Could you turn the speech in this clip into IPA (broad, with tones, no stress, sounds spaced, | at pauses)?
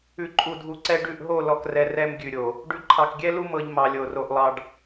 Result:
ʉ˨ ǃʼ u˨ dʱ u˨ ǀ ɛ˦ ɖ ʉ˦˨ ʔ ɦ o˦˨ l ɔ˨ k r ɛ˦ r ɛ˦ m ɡʲ ʉ˨ ɾʲ o˨ | ɖ ʉ˨ ǃʰ ɑ˨ k ɡʲ ɛ˦ l u˦ m ɤ˦ ʎ m ɑ˨ lʲ o˨ r o˦ ʔ lˠ ɑ˦ ɖ